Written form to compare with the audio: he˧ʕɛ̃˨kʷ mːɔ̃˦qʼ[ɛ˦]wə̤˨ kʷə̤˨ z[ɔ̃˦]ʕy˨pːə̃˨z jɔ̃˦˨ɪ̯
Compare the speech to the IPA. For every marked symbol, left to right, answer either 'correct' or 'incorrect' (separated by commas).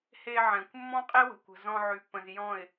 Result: incorrect, incorrect